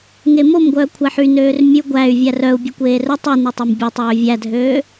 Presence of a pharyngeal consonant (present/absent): present